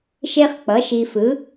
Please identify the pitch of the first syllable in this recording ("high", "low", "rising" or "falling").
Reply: high